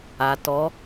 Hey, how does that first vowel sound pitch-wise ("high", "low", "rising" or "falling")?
low